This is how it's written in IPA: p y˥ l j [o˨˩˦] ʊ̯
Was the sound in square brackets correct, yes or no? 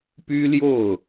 no